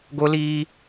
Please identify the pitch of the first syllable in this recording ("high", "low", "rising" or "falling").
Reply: high